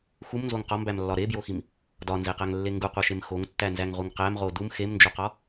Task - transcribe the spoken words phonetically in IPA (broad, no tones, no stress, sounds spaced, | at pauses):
x u m n z o ŋ q ɒ m b æ m lː ɒ ɾ e b j o x i m | d ɒ n z e q æ ŋ lː e ŋ ɡ u qʷ æ ʃ e m x o ŋ tː æ n z æ ŋ ʁ u ŋ q æ m ʁ o d u m x e m n d͡ʒ o q ɒ